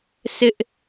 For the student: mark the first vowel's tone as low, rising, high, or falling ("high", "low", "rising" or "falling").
high